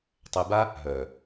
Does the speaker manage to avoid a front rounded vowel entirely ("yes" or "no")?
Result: no